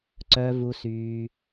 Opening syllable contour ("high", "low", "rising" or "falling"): low